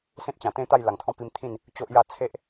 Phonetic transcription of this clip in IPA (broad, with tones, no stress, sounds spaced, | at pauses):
s ẽ˦ t̚ t͡ɕ ã˨˩ t̪ ẽ˥˧ t̪ a˥˧ j l a˨˩ ŋ t̪ʰ ɔ̃˦ p i˧ m t̪ʰ ĩ˥˧ n | t͡ɕ o˦ ʔ j a˥˧ t͡sʰ e˦ ʔ